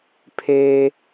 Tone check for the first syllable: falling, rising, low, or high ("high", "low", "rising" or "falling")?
high